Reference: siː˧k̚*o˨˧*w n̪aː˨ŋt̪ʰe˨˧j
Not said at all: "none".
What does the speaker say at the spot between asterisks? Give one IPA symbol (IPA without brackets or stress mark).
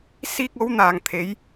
o˨˧